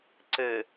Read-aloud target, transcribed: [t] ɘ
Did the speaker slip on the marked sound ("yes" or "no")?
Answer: yes